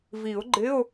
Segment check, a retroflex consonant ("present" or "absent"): absent